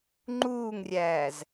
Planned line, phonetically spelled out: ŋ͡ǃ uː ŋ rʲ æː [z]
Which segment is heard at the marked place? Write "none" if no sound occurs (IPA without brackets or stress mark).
z